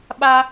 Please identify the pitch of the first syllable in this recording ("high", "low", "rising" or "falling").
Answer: high